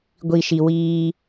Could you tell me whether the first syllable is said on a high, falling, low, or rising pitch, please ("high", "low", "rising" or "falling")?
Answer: low